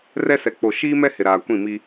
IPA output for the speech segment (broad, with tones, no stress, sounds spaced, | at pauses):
r ɛ˦ s ɛ˨ k͡p o˨ ʃ iː˦ m ɛ˦ h ɪ˨ ɾ aː˨ kʷ ĩ˦˨ m i˦